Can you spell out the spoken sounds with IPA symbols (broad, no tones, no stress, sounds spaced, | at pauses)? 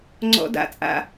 ŋ͡ǀ ɔ̰ d a̰ t͡sʼ a̰